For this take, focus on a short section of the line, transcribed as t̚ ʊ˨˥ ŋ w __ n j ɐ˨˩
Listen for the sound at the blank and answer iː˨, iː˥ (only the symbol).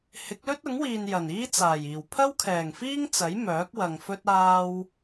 iː˨